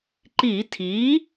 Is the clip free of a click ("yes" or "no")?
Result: no